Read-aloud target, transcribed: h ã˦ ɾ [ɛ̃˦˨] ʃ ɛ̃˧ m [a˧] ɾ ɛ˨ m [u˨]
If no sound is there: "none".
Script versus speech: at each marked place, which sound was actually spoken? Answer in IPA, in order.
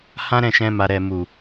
ɛ̃˦˨, a˨, u˨

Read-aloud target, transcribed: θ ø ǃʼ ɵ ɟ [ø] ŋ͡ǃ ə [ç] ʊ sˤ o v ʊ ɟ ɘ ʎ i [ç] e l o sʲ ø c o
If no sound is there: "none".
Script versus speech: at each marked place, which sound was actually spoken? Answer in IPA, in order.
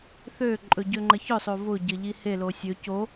ø, ç, h

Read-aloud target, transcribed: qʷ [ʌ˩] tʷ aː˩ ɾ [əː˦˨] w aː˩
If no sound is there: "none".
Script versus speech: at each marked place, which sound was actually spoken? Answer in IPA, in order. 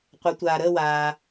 ʌ˩˧, əː˦˨

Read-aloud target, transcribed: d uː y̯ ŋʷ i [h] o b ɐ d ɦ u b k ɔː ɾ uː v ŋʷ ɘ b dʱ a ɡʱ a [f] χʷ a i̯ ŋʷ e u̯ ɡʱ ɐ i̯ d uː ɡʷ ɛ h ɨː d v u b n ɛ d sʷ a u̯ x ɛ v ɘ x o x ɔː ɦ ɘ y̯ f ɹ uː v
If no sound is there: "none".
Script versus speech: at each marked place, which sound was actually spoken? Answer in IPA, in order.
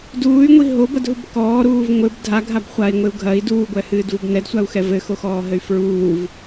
ɦ, b

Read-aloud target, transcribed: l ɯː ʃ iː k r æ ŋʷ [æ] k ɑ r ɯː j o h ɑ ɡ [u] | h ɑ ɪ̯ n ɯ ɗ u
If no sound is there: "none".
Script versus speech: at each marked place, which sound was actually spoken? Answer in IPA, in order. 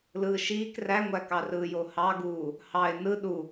æ, uː

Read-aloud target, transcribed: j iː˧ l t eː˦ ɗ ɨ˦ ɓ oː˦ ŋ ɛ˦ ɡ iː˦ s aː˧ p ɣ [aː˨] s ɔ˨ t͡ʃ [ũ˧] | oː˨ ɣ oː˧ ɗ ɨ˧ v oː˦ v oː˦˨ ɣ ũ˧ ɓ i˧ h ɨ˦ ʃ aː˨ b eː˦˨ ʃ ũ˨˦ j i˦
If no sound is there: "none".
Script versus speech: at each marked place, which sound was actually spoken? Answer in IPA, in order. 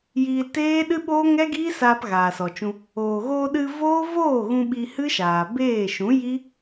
aː˨, ũ˧

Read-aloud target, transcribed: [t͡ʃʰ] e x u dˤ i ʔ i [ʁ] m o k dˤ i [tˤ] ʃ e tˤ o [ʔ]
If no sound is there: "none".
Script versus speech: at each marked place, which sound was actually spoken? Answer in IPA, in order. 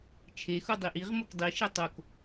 t͡ʃʰ, ʁ, none, k

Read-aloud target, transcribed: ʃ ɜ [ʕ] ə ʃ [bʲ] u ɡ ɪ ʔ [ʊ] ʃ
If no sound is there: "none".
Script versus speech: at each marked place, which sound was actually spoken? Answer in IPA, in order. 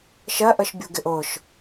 ʔ, bʲ, ʊ

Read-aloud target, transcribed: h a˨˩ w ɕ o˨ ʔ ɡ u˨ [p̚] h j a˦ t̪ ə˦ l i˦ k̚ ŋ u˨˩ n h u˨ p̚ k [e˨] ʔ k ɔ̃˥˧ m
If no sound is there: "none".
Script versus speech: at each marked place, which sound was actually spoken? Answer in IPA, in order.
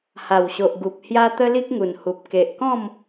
p̚, e˨

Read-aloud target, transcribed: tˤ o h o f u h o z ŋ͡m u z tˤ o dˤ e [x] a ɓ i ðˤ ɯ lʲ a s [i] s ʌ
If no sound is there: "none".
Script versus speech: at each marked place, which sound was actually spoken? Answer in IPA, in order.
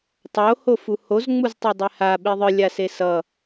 h, e

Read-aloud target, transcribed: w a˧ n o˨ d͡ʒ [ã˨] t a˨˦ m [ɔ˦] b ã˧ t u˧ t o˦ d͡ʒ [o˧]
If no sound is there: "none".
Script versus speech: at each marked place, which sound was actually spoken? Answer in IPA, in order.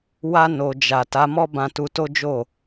a˨, ɔ˦, o˦˨

